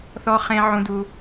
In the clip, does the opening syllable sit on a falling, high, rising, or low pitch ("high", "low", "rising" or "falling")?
high